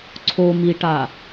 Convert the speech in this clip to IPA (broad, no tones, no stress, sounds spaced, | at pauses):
ǀʰ o m i ʈ a